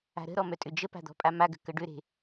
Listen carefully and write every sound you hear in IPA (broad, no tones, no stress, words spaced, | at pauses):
a̤ɾə̤ɾɔ mœtʼʏd͡ʒəpa̤ d̪ɔ̤pʼamaɡə̤ kəɖʏɾe̤